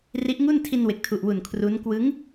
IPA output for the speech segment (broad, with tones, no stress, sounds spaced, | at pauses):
r i˦˥ ʔ ŋ u˥˩ n tʰ i˧ n w e˨˩ k̚ tʰ u˨˩ ʔ w u˨˩ n kʰ r u˦˥ n k w ɯ˦˥ ŋ